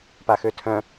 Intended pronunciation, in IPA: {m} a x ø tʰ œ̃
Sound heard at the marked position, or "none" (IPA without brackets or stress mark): p